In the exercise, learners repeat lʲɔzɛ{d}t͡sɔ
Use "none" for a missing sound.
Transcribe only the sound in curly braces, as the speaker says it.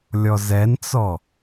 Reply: n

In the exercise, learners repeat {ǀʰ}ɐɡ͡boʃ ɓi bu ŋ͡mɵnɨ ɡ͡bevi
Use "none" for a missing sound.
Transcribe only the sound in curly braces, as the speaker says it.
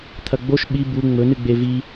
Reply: t̪ʰ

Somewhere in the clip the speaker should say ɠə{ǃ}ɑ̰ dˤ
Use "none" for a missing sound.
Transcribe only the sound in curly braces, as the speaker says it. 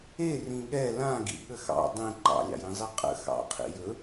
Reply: x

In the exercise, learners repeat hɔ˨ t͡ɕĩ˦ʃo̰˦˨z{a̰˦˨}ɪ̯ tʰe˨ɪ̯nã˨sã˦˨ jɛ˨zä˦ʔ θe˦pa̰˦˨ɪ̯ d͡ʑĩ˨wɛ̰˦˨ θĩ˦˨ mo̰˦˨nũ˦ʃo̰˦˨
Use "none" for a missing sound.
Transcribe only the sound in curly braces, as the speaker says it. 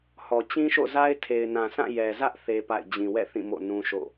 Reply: a˦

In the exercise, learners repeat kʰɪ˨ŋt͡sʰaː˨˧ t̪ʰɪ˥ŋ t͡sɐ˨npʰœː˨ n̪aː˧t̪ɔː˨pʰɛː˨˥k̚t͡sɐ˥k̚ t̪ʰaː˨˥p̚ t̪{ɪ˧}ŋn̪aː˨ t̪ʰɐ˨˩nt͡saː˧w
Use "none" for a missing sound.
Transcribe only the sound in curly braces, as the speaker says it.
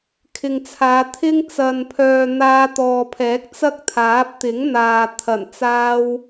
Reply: ɪ˨˥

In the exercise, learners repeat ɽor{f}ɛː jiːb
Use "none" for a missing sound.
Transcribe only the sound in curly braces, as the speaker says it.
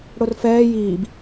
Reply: f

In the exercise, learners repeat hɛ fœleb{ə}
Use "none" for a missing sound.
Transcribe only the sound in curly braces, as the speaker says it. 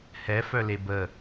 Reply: ə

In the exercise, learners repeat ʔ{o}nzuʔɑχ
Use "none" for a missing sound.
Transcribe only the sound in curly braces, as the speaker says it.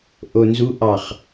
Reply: o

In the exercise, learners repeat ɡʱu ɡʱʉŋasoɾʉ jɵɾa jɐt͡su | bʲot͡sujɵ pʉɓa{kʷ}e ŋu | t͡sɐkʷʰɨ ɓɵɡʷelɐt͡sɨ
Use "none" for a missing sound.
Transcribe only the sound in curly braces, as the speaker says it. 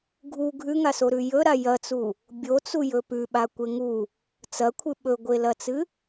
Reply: kʷ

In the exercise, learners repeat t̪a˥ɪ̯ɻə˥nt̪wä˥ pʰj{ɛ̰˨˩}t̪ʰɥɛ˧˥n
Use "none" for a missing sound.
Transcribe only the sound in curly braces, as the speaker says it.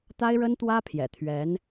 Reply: ɛ̰˨˩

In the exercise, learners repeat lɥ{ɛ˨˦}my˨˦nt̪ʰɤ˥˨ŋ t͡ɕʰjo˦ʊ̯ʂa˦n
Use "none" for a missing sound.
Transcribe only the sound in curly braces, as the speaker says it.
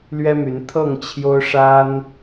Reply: ɛ˦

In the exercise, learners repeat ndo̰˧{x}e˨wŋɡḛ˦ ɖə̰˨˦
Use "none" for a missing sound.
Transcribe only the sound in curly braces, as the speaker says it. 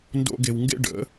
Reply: ɡ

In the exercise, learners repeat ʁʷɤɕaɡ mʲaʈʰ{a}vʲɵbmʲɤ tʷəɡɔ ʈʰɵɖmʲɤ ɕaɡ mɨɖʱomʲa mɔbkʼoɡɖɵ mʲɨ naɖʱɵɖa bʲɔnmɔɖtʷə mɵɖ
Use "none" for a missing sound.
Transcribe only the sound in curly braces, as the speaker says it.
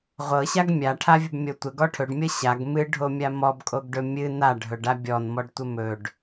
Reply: a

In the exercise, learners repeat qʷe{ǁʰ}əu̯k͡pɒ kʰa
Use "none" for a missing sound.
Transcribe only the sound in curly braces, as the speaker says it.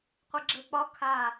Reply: ɡ͡ǁ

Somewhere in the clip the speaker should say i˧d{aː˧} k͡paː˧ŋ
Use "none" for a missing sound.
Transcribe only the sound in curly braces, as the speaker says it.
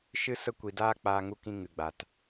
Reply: aː˦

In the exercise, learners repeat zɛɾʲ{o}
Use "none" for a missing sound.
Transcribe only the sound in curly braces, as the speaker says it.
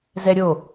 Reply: o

